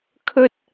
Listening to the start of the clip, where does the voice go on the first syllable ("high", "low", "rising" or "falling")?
high